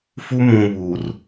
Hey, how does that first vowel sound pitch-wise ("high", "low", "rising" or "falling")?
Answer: high